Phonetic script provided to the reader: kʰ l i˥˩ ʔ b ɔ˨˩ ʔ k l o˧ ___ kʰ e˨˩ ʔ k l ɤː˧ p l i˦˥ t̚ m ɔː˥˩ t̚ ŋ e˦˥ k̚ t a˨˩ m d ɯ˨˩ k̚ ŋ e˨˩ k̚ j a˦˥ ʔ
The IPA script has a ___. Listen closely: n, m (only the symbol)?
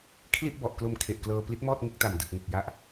m